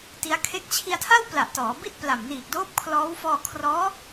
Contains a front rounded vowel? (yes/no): no